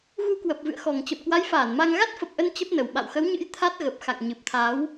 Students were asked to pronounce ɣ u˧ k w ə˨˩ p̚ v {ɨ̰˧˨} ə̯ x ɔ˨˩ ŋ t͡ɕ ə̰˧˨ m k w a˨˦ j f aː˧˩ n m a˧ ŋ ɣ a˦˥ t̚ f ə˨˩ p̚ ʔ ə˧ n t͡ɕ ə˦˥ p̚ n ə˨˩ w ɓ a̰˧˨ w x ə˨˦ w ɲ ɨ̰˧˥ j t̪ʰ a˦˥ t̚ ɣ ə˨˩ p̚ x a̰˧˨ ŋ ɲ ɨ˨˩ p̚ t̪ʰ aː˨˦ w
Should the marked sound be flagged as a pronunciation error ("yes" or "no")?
no